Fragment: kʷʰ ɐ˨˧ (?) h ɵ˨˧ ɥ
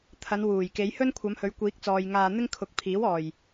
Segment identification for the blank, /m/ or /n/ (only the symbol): m